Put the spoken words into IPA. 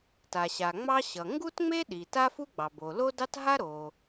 t a˩ ɕ a˩ ŋ͡m ɑ˥ ɕ ʌ˩ ŋ ɡ u˥ t ŋ͡m e˥ ɗ i˩ t a˥ f u˥ ɡ͡b ɑ˩ b o˩ l o˥ d ɑ˥ t ɦ a˥ ɾ o˩

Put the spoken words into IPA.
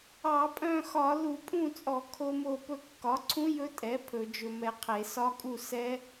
ɑ˧˩˧ pʼ œ̃˥˨ x ɒ˧˩˧ l u˧˩˧ pʼ ũ˥˨ t͡sʼ ɔ˧˩˧ kʰ o˦˥ m o˥˨ p ɵ˧ kː ɒ˩˥ ǀʰ ũ˦˥ j ɵ˦˥ tʼ ɛ˩˥ pʰ ɵ˧˩˧ d͡ʒ ɵ˧ m ɛ˧ qʰ e˧˩˧ s ɒ˦˥ kʼ u˥˨ s ɛ˦˥

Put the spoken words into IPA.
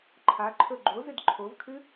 ǃʰ a ǃʰ ɵ ɡ͡ǃ o z ɨ d ǃʰ o v kʰ ɨ

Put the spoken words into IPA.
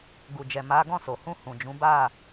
ɡ u˨ d͡ʒ ɛ˨ m a˨˦ ɡ ɔ̃˦˨ s o˨ h ũ˧ h ũ˨ d͡ʒ ũ˨˦ b a˦˨

